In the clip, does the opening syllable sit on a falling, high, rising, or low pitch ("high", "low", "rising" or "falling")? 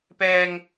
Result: high